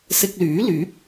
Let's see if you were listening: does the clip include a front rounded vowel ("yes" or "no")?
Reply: yes